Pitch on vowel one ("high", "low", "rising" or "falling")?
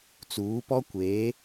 rising